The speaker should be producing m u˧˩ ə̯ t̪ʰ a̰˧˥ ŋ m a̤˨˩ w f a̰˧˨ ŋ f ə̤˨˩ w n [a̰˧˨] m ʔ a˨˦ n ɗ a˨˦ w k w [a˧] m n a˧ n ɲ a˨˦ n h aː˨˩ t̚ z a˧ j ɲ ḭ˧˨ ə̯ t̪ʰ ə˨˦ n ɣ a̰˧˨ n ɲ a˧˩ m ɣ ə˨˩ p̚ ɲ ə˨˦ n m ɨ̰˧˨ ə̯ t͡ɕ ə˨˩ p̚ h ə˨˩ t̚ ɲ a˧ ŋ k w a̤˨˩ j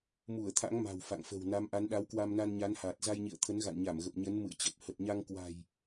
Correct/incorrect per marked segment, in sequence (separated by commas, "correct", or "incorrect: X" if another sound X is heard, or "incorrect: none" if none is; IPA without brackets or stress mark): incorrect: a˨˦, correct